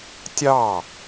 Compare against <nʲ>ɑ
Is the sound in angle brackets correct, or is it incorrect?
incorrect